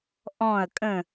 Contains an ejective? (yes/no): yes